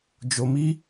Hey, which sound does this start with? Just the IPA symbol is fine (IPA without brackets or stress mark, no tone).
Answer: d͡ʒ